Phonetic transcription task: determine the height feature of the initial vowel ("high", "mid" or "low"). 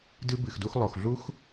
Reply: high